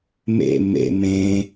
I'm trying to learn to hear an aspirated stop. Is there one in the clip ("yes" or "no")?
no